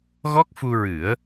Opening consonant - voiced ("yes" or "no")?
yes